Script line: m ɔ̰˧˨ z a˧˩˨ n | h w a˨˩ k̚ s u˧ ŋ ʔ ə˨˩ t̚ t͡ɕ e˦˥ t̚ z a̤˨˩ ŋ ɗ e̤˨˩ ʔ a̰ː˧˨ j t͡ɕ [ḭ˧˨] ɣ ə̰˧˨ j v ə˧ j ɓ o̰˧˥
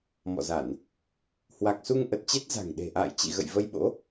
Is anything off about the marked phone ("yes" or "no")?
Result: no